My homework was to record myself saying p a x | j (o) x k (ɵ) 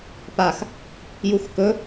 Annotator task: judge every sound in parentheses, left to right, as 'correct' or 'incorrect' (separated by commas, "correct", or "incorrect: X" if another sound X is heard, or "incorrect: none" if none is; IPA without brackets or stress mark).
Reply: incorrect: u, correct